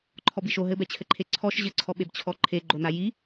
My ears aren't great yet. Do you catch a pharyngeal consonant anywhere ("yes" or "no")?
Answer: no